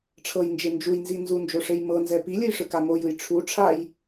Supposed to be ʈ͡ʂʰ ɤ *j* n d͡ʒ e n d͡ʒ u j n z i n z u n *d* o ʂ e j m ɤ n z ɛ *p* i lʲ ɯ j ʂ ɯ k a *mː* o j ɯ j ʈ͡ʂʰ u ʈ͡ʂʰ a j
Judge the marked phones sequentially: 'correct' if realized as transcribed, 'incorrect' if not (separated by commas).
correct, incorrect, correct, incorrect